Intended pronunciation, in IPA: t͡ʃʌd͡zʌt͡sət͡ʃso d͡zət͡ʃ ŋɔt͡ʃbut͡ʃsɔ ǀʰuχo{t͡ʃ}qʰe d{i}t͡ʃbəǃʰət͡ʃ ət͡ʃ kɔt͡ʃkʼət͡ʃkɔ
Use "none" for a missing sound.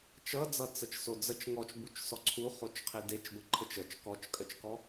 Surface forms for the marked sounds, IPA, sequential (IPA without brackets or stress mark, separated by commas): t͡ʃ, e